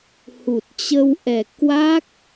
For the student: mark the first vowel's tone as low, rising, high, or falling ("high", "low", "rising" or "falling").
low